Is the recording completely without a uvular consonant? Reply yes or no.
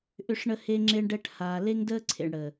yes